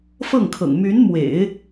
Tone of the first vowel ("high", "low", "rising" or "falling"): falling